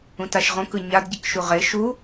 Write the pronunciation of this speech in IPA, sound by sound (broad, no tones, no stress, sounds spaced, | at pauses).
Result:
ũ t a ʃ ʁ õ k ɯ ɲ a d ɟ i k ʃ u ʁ e ʃ u